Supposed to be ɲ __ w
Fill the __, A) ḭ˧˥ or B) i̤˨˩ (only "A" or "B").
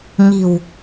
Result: B